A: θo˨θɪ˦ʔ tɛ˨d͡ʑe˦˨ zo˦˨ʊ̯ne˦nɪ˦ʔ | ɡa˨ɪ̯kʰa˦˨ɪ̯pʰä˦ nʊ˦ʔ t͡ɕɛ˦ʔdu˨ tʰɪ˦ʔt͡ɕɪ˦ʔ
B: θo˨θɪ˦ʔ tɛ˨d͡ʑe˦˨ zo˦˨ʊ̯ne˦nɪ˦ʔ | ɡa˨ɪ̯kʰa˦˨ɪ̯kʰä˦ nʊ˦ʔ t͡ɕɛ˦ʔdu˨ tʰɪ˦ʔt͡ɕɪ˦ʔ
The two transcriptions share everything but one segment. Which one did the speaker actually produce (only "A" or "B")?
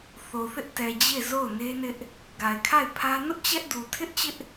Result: A